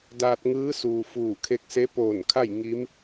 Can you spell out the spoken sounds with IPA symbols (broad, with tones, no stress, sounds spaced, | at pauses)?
d aː˧ t̚ ŋ ɯː˧˥ s uː˩ f uː˧˩ kʰ e˧ k̚ s e˧˥ p oː˧˩ n kʰ a˥˨ j ŋ i˧˥ m